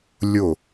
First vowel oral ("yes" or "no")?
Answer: yes